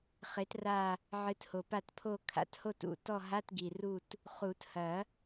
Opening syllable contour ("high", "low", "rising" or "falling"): rising